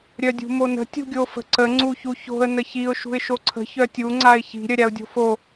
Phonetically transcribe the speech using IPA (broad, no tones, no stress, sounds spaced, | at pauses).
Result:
ɾʲ œ dʲ ṳ m o n ə̤ tʲ ṳ ɡʲ o f ə̤ ǀ ə ŋ͡ǀ u ç u ç o̤ ə̯ n ə ç i ʊ̯ ʃ ṳ ɪ̯ ʃ o ǀʰ ə̤ ç œ tʲ u ŋ͡ǀ a ɪ̯ ç i̤ ɾʲ œ ɾʲ a ʊ̯ dʲ o̤ f o